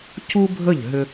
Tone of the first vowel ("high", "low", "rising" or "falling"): high